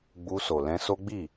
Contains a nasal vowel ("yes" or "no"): yes